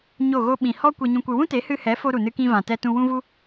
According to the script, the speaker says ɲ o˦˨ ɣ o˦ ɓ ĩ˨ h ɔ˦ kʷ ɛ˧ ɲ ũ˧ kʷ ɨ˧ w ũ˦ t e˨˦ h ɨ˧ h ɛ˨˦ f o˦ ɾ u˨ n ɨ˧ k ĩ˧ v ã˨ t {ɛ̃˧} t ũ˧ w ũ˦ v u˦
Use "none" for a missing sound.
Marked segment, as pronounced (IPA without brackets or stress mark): ɛ˧